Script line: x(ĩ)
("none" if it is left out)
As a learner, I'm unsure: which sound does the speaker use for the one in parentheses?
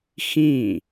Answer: ĩ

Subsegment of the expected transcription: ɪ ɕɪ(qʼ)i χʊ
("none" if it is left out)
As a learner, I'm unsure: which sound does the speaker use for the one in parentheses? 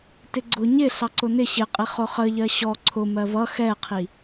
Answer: qʼ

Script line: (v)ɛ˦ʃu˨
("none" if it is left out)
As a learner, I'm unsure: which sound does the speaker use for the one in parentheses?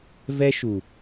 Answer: v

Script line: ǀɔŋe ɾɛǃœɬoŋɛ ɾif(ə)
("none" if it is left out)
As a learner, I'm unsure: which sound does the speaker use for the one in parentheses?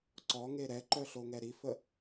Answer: ə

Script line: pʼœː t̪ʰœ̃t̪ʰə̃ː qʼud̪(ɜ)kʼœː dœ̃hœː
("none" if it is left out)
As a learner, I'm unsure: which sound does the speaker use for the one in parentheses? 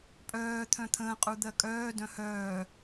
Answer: ɜ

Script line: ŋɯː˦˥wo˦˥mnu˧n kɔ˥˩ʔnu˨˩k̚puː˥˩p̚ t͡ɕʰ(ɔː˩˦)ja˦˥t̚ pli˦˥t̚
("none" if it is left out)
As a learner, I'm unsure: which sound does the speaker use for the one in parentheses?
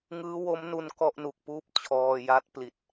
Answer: ɔː˧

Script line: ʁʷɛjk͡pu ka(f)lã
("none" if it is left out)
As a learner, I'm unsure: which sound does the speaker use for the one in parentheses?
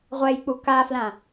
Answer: f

